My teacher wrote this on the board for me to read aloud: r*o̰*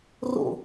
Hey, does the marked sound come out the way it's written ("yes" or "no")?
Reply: yes